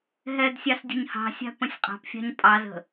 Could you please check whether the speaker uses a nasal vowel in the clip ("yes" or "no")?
yes